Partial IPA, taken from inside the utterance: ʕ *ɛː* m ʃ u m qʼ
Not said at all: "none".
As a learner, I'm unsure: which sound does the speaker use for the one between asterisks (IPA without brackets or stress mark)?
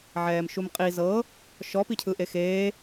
ɛː